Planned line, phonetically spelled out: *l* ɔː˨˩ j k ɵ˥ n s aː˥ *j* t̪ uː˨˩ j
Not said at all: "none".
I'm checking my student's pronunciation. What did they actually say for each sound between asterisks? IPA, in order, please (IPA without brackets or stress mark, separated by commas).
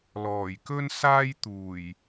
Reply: l, j